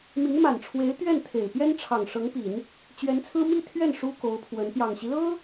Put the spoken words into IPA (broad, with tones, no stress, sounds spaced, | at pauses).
m i˧˥ ŋ m a˨˩ n ʈ͡ʂʰ w e˧˥ ɪ̯ t̪ ɥ ɛ˥˩ n t̪ʰ e˨˩ ɪ̯ p j ɛ˥ n ʈ͡ʂʰ ɑ˨˩ ŋ ʂ ɤ˧˥ ŋ p i˨˩˦ n | t͡ɕ ɥ ɛ˧˥ n t͡sʰ ɹ̩˥ m i˥˧ t̪ʰ ɥ ɛ˥˩ n ʂ u˥ k o˧˥ ʊ̯ pʰ w ə˧˥ n p j ɑ˨˩ ŋ ɕ i˦ l ɤ˥